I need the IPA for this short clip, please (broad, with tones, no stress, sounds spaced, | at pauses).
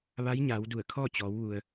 ʋ a˧˥ j ɲ a˩˧ w d u˧˩ ə̯ kʰ ɔː˥˨ t͡ɕ ɔː˩˧ w ʋ u˩ ə̯